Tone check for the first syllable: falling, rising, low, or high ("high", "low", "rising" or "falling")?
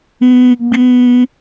high